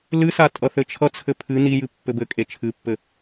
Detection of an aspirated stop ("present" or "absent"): present